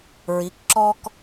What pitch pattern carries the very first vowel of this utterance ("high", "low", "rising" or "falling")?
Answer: rising